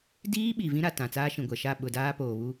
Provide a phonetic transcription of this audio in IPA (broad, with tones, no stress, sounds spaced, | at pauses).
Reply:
d iː˦ ɓ i˨ v ĩ˦ ɾ a˨ t ã˨ t͡s aː˦ ʃ ĩ˨ ɡʷ ɛ˨ ʃ a˦˨ ɓ ʊ˨ d aː˦ p oː˨ β u˦